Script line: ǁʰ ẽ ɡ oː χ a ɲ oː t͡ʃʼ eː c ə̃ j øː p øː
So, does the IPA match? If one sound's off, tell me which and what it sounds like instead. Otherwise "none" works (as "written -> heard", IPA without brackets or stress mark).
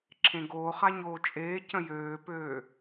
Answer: none